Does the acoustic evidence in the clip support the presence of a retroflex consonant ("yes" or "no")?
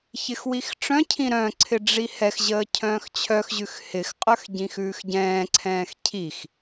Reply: yes